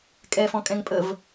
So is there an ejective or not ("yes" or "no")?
yes